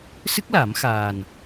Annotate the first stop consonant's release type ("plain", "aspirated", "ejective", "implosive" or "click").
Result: plain